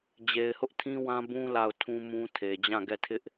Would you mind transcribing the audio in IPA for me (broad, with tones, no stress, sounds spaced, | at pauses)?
d͡ʑ e˨ ɪ̯ h ʊ˦ ʔ tʰ ĩ˦ w ã˦ b ũ˦ l a˦˨ ʊ̯ tʰ ũ˦ m ũ˦ tʰ e˨ d͡ʑ ã˦˨ ɡ ɛ˦˨ tʰ ɪ˦ ʔ